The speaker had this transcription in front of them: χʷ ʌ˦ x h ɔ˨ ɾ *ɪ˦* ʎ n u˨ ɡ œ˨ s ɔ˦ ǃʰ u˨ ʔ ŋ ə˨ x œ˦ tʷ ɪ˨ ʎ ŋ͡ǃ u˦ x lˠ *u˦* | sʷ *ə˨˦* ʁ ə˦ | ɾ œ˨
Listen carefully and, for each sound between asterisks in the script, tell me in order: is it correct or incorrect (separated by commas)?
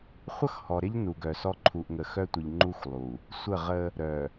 correct, incorrect, incorrect